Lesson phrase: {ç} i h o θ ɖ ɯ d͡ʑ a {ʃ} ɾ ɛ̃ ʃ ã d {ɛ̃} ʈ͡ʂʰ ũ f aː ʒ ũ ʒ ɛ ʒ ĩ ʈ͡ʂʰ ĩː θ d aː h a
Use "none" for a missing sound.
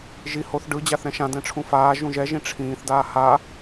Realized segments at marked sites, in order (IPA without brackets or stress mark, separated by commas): ʒ, θ, ɛ̃